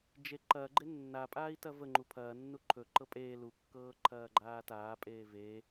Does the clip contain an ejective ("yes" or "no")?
yes